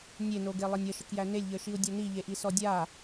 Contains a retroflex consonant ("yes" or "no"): no